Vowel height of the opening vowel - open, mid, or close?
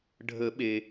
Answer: mid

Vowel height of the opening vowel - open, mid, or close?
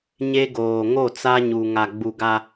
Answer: mid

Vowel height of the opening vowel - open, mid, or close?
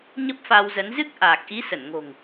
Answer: mid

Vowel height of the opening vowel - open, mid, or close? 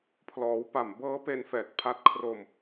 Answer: mid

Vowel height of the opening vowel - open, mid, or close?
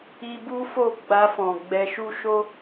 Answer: close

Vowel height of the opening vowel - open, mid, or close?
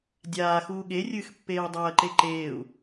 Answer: open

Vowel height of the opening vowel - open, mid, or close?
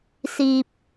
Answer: close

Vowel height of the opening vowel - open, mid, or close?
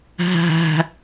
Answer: open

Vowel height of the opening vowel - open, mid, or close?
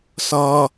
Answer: mid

